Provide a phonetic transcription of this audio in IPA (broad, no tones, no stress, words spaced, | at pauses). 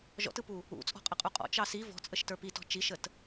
ʒɔ̰tɯpu | ṵ t͡sʼɔ̤qʼəqʼuqʼɔ̰ t͡ʃɑsi vɔ̤ t͡sʼəʃtə˞pitɔ̤ t͡ʃiʃət